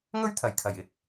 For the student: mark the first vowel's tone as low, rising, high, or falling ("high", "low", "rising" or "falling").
high